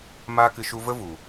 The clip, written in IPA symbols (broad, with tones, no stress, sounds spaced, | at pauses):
m aː˧ k ɨ˨ ʃ u˧ v ə˦ v u˨